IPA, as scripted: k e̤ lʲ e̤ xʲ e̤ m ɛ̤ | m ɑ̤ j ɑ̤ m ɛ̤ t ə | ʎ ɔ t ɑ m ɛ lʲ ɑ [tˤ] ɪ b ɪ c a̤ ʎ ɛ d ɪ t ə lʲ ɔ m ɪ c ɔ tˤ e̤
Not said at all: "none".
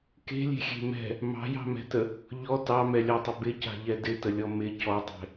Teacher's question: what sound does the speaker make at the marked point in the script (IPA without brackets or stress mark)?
tˤ